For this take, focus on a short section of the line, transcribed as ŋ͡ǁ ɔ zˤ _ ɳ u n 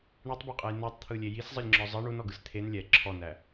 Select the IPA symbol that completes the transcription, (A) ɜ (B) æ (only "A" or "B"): A